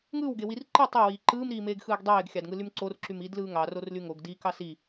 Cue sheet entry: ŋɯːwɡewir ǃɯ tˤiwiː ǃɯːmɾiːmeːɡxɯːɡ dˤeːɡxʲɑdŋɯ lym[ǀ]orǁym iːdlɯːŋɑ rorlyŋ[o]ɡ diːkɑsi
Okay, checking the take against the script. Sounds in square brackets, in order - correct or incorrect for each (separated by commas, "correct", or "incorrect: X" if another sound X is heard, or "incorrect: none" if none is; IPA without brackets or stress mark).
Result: correct, correct